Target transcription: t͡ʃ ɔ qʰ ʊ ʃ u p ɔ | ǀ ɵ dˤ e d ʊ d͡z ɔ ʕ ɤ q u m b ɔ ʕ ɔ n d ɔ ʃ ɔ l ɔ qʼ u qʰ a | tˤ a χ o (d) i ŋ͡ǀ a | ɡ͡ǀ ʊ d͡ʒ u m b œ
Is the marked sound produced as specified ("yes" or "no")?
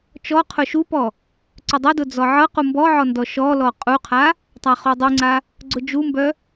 no